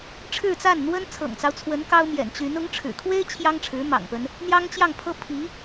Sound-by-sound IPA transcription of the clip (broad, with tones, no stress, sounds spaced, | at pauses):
ʈ͡ʂʰ ɻ̩˥˧ t͡s a˥˩ n n̪ w ə˥ n t͡sʰ ɤ̰˨˩ ŋ t͡s ɑ˦ ʊ̯ t͡sʰ w ə˧˥ n k ɑ˥ ʊ̯ m j ɛ̰˨˩ n t͡ɕ y˧˥ n ʊ˧˥ ŋ ʈ͡ʂʰ ɻ̩˨˩ kʰ w e˥ ɪ̯ t͡ɕʰ j ɑ˥ ŋ ʈ͡ʂʰ ɻ̩˧˥ m ɑ̰˨˩ ŋ p ə˦ n | n̪ j ɑ˥ ŋ t͡ɕ j ɑ˥˩ ŋ pʰ ɤ˥ pʰ i˧˥